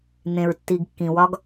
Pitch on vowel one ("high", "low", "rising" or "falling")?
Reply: low